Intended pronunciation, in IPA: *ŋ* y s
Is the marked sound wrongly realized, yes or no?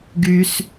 yes